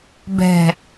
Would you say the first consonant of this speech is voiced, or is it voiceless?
voiced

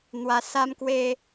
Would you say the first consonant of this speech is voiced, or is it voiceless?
voiced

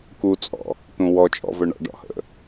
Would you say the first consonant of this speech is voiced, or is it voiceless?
voiceless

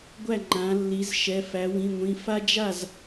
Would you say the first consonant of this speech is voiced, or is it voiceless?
voiced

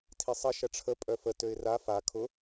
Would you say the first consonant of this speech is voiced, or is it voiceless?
voiceless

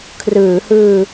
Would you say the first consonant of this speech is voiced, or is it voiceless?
voiceless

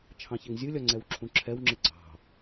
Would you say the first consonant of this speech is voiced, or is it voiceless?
voiceless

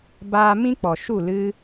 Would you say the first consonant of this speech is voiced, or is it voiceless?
voiced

